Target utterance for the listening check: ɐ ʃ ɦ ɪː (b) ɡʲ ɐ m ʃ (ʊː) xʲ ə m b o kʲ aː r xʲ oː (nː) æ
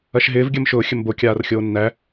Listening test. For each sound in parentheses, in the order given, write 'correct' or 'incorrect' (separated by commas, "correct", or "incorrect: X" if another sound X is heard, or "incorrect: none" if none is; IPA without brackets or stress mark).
incorrect: v, correct, correct